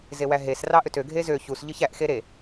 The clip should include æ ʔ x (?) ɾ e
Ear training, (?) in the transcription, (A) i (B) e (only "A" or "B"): B